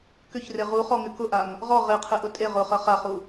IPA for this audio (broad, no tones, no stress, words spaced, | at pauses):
kʏçre ʁuχɔŋʏ kʊʔaŋ | ʁɔ ʁeqʰeʔʊ tʼe ʁʊχɐ χaχu